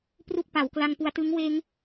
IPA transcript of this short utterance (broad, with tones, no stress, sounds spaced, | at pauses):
p r u˥˩ k̚ p a˩˦ w k l a˧ ŋ p u˧ a̯ t ɯ˦˥ ŋ w eː˦˥ ŋ